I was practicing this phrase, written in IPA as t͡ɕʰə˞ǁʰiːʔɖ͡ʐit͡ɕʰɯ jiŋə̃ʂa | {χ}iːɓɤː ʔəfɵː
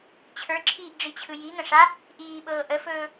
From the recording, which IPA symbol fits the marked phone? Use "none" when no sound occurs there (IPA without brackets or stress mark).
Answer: ʔ